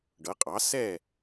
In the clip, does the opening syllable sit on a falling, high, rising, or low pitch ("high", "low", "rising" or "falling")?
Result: rising